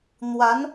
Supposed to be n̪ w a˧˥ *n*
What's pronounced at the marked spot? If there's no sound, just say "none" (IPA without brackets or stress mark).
n